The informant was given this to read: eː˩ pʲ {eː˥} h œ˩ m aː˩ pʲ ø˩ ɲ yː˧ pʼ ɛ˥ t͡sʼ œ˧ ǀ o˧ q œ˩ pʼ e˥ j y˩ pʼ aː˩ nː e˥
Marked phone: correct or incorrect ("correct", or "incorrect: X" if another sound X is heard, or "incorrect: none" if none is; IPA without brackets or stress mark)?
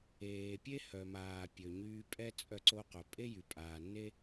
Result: incorrect: e˥